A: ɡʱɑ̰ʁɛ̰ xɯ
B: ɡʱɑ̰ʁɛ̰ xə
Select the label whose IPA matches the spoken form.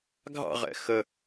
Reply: B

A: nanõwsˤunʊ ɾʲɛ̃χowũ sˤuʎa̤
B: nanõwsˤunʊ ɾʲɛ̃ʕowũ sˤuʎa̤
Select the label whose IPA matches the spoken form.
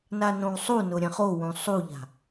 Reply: A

